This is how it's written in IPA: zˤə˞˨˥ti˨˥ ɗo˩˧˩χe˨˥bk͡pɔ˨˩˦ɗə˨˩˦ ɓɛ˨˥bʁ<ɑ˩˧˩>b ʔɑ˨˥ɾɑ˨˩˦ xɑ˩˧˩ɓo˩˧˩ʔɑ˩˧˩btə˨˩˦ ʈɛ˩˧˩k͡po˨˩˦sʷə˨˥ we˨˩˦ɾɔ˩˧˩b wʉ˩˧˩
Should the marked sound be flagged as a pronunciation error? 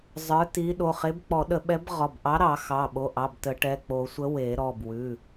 yes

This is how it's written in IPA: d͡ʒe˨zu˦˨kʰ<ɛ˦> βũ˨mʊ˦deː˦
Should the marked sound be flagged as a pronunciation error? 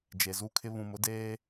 yes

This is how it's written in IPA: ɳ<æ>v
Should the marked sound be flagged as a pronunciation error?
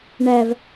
no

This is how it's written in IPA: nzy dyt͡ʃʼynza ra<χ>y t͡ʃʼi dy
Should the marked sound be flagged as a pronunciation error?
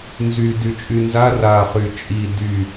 no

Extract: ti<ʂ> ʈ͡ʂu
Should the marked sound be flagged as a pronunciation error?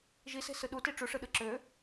yes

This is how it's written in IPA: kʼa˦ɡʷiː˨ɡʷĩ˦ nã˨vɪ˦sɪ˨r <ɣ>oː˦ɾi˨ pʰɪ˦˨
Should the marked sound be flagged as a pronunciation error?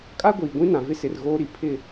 no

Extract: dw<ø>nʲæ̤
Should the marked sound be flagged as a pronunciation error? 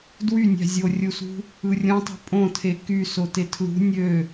yes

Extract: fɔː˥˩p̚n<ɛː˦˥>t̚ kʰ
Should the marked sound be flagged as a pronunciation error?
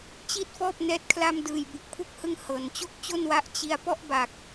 no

